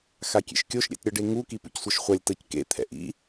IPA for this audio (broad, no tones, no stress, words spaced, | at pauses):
xakʲḛʃkʲoʃ ɾʲɛ̰tɾʲɤɖeŋu kipṵcsʷɤʃχʷalʲ tɤckḛ t̪ʰɛ̰ʔḭ